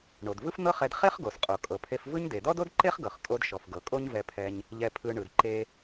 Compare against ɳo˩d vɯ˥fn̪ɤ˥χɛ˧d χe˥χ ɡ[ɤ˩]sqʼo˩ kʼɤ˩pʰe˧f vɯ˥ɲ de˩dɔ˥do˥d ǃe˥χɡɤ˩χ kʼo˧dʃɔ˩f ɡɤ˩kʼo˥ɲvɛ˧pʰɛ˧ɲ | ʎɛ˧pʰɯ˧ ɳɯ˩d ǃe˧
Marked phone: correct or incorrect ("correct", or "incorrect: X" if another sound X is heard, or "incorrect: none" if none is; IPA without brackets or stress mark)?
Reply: incorrect: o˩